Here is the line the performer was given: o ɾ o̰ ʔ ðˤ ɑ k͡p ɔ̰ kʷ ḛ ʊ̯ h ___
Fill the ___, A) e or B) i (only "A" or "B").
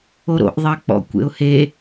A